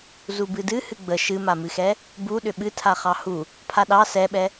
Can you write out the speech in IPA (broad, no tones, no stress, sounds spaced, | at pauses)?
z u b ɨ d ɨ h ɨ ɡ͡b ə ʃ ɨ m a m ɨ x ɛ | b u ɗ ʏ ɓ ɨ tʰ a χ ɑ h u | pʰ a ɗ ɑ s ɛ ɓ ɛ